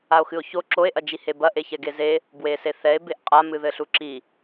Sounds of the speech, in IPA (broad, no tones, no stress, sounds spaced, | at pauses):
a o̯ x ɨ o̯ ç o ǁ o e̯ ʔ ɐ d͡ʒ i h e b ɐ ʔ e ç ɛ ɡ e z e | b w e s e θ ɛ e̯ b e ʔ qʼ a m ɨ ð ɘ ɬ u ǁ i